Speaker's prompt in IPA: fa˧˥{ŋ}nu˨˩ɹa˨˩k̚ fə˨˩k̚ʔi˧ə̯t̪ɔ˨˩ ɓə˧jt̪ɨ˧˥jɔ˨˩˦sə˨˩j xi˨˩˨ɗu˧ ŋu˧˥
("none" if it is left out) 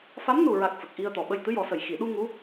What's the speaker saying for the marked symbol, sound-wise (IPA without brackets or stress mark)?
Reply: m